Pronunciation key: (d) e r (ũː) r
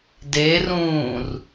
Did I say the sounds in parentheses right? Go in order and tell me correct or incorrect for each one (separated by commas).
correct, correct